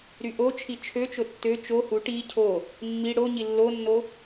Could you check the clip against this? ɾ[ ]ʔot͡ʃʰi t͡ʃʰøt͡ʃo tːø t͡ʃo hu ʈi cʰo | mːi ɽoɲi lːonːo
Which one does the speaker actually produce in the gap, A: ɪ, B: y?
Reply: B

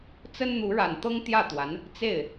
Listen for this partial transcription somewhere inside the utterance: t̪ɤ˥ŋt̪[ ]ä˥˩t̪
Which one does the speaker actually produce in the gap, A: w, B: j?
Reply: B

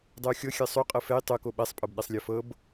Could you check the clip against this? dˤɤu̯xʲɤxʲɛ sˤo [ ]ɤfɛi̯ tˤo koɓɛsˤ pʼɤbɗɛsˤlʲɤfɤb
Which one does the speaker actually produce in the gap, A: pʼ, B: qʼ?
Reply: B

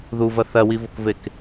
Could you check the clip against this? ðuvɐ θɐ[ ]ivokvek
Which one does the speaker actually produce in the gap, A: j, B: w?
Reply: B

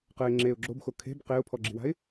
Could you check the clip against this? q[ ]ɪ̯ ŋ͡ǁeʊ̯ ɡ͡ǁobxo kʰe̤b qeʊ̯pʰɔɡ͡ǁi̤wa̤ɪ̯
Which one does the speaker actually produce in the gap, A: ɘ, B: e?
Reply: A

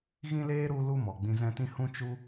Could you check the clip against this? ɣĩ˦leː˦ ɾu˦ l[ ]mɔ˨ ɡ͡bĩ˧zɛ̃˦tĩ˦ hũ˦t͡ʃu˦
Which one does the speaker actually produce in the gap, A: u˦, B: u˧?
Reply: A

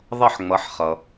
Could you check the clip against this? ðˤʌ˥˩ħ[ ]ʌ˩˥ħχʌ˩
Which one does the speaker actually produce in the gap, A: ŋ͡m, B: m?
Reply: A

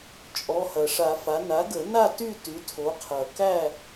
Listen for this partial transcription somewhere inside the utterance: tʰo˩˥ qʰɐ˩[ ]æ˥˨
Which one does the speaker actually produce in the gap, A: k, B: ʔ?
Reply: A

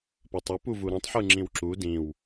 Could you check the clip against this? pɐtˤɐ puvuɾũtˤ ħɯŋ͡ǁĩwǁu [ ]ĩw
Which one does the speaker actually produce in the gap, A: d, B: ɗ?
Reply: A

